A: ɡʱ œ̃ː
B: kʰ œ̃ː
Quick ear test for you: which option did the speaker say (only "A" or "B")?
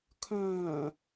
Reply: B